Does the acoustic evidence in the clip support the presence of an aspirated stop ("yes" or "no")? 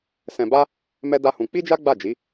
no